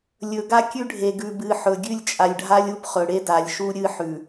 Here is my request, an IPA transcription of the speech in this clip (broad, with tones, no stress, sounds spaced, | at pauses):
lʲ ɵ˨ ɡ a˦ kʲ ʉ˦ ɖʱ e˨ ɡ ʉ˨ b ɨ˨ ħ ɵ˨ ɡʲ ʉ˦˨ lʲ t͡ʃʼ a˨ lʲ ɖʱ a˦ lʲ u˦ p χ ɵ˨ ɽ e˦ d a˨ lʲ ʃ u˦ ɾʲ ɨ˦ ħ ʉ˨